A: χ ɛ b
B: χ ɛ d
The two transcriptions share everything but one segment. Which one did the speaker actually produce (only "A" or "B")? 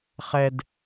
B